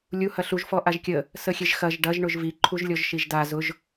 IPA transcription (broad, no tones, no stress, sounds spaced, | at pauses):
lʲ u h ɐ ɬ u ʒ f ɔ ʔ a ʒ kʲ ə | s ə xʲ e ʒ x ɐ ʒ ɖ ɐ ʒ ɳ ʊ ʒ v i ǃʰ u ʒ lʲ ɔ ʒ ʃ i ʒ d a z ʊ ʒ